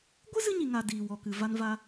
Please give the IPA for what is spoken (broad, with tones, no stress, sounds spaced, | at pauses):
ɡʷ ɨ˦ z ɨ˦ ɲ i˨ ŋ a˨ d iː˨ w ɔ˨ k ɨ˨ v a˧ n v a˧